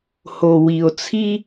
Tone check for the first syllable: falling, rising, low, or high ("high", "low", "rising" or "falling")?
low